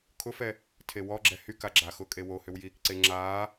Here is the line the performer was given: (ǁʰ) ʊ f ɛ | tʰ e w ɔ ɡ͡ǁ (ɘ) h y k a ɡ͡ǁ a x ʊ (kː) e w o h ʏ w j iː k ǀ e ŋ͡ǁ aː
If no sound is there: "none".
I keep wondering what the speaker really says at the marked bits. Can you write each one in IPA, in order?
kʰ, ɛ, kʼ

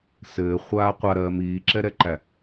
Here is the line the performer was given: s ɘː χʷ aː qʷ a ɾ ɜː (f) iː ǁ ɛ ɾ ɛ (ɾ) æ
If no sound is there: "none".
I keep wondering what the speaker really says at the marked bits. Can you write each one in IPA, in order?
m, ǃ

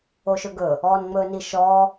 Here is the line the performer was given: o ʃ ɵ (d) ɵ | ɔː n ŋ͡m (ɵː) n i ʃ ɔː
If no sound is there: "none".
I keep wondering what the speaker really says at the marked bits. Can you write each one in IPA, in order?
ɡ, ɵː

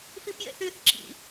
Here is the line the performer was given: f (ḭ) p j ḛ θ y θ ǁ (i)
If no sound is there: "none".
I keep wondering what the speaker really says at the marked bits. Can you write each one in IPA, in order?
i, ḭ

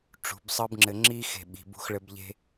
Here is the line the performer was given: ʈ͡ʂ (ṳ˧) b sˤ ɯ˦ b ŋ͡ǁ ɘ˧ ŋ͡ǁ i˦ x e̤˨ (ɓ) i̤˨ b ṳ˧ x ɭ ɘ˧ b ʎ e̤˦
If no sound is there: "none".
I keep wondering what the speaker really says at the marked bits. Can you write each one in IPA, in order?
ṳ˨˦, ɓ

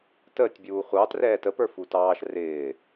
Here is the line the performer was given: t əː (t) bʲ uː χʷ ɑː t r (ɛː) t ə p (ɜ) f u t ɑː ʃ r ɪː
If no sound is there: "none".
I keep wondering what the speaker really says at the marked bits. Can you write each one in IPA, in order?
tʲ, ɛː, ə˞

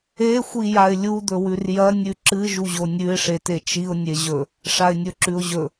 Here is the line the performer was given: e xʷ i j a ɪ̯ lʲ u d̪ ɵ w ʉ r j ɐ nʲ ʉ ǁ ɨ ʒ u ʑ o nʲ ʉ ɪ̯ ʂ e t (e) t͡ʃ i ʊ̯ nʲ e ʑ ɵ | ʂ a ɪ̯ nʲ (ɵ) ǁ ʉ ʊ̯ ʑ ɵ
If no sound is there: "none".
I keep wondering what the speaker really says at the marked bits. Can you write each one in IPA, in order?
e, ɵ

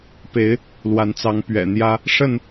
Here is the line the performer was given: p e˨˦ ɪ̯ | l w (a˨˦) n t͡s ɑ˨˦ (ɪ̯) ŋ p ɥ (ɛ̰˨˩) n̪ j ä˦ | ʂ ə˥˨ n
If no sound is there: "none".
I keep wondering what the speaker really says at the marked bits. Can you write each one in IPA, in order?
a˨˦, none, ɛ̰˨˩

